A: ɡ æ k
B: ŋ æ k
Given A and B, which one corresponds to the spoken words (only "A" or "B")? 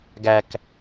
A